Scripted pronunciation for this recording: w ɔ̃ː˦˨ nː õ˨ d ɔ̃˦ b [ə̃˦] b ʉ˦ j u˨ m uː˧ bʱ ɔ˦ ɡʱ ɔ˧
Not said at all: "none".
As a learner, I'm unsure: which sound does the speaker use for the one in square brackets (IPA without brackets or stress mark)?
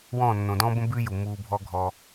ə̃˦